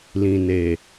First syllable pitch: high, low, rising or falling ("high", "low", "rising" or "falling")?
low